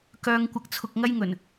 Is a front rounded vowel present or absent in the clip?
present